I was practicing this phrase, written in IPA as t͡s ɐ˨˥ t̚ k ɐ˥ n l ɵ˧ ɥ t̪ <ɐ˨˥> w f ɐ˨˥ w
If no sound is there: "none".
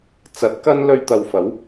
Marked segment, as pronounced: ɐ˨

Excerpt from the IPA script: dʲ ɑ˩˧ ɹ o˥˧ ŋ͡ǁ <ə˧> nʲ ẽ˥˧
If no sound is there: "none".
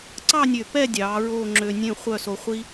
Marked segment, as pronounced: ø˧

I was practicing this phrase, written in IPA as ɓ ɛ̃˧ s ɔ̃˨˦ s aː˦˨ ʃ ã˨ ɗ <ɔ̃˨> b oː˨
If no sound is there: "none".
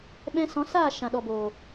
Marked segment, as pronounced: ɔ˨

